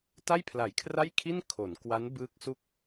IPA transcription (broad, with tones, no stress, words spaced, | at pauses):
ta˥˩jpʰla˩˦jkʰra˥˩jkʰi˥˩n kʰo˩˦nkwa˦˥n bɯː˦˥k̚su˥˩k̚